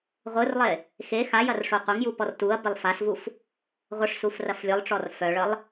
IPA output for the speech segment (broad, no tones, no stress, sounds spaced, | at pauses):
ʁʷ ɯ r lˠ e | x e x a j ɐ r ʂ o qʷ ɐ ŋ j u p ɔ r t u ɐ̯ b ɪ lˠ f a s v u f | ʁʷ ə ʂ s u f r ɐ f lʲ ɯ lˠ ʈ͡ʂ ɔ r f œ ɭ ə lˠ